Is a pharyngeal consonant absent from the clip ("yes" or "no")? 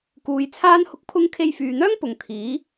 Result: yes